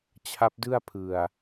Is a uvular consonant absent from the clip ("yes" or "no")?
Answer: yes